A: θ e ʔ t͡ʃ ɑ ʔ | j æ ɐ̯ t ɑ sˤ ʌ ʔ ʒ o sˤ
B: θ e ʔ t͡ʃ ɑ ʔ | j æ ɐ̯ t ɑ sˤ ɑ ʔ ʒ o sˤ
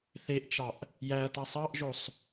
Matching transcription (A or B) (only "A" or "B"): B